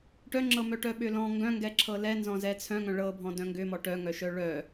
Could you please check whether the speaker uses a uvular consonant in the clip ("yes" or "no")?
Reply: no